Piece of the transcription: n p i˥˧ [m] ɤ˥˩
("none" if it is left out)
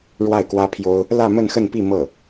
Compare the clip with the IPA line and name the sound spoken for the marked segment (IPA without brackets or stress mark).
m